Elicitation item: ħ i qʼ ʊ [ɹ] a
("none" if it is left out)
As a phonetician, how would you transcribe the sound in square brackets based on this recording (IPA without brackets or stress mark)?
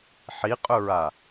ɹ